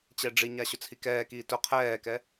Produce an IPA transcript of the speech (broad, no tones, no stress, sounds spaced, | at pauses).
t͡ɕ ɛ ɖ͡ʐ i ɲ a ɕ ɵ t͡sʰ i k ɛː k iː t ʊ qʰ ɛː k ɛ